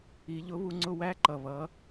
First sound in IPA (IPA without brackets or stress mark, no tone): i